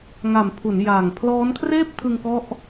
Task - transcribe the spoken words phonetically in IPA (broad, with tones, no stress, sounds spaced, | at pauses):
ŋ a˨˩ m pʰ u˩˦ n j aː˨˩ ŋ pʰ l ɔː˦˥ n kʰ r eː˥˩ p̚ tʰ ɯ˧ ŋ k ɔ˦˥ ʔ